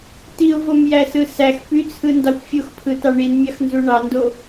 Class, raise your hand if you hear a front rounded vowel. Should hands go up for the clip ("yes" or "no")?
yes